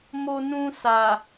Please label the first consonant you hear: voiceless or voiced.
voiced